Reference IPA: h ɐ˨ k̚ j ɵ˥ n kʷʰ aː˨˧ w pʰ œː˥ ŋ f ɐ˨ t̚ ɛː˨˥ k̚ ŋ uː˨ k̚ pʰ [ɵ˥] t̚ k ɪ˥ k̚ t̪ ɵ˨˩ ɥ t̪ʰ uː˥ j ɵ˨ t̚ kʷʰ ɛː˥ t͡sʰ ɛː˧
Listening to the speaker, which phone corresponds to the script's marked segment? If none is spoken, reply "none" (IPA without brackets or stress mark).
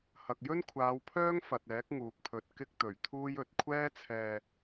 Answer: ɵ˨